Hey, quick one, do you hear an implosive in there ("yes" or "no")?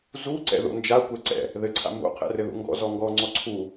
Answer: no